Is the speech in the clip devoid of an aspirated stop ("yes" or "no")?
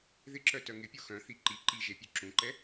yes